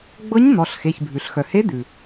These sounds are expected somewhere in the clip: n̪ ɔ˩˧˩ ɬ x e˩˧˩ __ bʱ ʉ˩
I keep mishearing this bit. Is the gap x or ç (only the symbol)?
ç